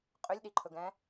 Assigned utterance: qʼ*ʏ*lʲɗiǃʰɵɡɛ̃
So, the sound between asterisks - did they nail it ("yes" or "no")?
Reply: yes